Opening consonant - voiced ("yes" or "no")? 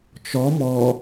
no